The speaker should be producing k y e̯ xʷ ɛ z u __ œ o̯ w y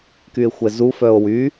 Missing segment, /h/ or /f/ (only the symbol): f